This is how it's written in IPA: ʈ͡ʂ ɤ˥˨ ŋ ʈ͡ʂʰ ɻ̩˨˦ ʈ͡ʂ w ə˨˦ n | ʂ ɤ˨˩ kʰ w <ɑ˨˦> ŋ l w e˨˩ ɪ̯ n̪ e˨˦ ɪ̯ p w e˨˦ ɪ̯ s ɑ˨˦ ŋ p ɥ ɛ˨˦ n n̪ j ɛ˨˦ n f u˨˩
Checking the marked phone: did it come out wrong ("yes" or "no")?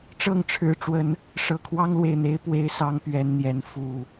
yes